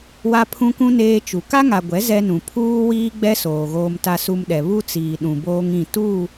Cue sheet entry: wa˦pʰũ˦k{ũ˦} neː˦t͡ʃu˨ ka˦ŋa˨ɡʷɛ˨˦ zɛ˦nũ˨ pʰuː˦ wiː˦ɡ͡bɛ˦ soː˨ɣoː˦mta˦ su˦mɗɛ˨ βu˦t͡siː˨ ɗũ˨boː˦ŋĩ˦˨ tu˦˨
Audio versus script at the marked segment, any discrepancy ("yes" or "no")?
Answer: no